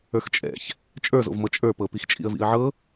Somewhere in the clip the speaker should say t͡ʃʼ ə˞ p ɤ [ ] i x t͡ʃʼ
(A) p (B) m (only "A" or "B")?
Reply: A